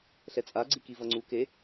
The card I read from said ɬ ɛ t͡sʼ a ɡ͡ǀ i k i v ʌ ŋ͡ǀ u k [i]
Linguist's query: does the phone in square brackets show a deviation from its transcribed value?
yes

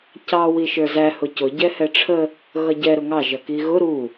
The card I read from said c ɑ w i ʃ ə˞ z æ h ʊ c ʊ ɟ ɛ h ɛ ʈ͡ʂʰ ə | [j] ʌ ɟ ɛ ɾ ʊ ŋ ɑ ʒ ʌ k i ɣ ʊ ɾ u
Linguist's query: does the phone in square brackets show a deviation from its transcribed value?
yes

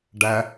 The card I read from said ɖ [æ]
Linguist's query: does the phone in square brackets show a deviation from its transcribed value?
no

